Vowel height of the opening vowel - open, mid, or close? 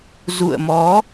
close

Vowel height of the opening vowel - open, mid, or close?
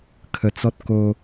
mid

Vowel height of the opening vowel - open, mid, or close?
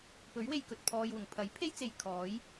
mid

